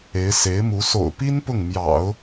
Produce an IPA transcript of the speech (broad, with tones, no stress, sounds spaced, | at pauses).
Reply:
e˧˥ ɪ̯ s e˧˥ ɪ̯ m u˧˥ s o̰˨˩ ʊ̯ p i˥ n p ʊ˥˩ ŋ m j ɑ̰˨˩˦ ʊ̯